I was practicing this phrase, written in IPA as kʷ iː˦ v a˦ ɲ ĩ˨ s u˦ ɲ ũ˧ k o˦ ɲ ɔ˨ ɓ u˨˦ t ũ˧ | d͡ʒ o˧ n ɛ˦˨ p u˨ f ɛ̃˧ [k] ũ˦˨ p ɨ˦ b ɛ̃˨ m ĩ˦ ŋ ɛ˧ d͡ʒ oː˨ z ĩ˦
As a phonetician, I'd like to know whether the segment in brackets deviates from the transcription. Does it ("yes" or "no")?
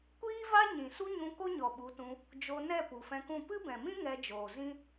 no